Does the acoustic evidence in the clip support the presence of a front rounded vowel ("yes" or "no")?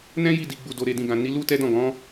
no